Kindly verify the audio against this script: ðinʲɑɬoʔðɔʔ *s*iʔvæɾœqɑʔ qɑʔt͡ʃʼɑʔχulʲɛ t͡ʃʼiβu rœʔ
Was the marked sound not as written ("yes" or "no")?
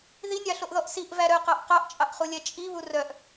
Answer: no